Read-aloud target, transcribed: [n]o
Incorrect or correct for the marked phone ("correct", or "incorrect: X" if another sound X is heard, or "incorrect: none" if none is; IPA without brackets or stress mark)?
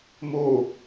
incorrect: m